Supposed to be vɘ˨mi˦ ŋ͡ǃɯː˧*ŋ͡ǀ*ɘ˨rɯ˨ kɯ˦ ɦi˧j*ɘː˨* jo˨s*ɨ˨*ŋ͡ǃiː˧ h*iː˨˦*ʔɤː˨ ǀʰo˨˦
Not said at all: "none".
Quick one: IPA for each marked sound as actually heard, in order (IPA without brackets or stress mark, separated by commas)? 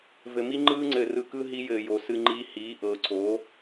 ŋ͡ǀ, ɘː˨, ɨ˧, iː˨˦